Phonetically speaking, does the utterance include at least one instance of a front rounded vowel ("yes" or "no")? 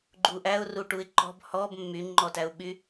yes